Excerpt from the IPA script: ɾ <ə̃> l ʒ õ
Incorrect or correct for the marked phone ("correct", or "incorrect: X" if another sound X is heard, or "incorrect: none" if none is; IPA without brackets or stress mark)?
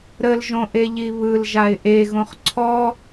incorrect: ə